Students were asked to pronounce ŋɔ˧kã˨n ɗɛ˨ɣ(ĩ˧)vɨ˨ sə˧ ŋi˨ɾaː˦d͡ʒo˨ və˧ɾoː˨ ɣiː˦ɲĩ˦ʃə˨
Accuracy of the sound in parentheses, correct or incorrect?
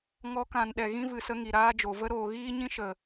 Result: incorrect